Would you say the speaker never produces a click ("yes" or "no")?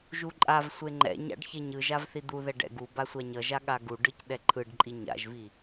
no